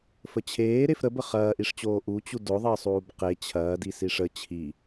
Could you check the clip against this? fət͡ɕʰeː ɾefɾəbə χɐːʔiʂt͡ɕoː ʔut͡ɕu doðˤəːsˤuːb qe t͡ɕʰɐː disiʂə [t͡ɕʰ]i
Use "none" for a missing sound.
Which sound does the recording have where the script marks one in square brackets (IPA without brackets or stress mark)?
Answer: t͡ɕʰ